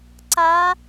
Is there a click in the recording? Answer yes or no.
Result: yes